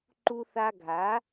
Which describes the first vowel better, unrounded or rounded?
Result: rounded